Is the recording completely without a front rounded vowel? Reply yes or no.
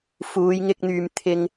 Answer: no